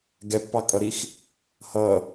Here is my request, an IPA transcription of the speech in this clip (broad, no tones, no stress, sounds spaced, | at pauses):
ɡ ɛ pː ɑ kʼ ʌ ɾ i x | h ʌ